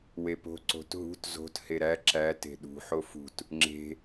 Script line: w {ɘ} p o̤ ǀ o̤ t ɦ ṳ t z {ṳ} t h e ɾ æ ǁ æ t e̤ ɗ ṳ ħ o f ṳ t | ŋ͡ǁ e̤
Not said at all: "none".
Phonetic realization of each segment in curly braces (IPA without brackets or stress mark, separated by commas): e, o̤